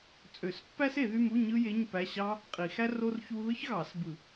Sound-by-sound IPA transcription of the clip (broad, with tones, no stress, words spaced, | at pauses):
t͡sʼø˨˩˦s pːæ˥se˨˩˦ðy˧˥˧mu˧˥˧ ɲɯ˥je˧˥˧ɲ pæ˧˥˧ɕɑ˥ | qʼi˨˩˦xæ˥ ro˥rçu˥ ðɯ˥çɣɑ˨˩˦sbɯ˨˩˦